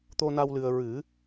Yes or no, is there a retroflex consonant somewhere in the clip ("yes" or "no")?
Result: no